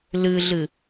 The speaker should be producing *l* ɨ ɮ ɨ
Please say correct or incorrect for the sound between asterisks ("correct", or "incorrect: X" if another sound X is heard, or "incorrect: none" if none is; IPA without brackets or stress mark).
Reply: correct